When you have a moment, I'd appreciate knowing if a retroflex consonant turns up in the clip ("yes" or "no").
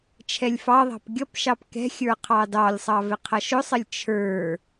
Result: no